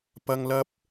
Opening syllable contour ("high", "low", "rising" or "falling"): high